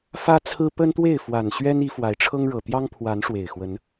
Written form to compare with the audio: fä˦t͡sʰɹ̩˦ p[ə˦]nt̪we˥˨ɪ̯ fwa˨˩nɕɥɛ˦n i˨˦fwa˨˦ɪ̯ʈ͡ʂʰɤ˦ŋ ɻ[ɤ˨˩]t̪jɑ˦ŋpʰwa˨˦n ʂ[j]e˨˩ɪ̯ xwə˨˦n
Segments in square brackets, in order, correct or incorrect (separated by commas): correct, correct, incorrect